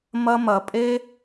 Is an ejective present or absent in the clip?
present